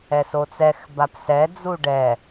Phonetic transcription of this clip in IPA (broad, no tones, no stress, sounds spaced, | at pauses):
ɛ s o t͡s ɛ x b a p s ɛ d͡z u ɖ ɛ